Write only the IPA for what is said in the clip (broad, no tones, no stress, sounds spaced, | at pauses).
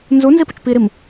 n z u n z i p u t͡ʃ p i ɾ i m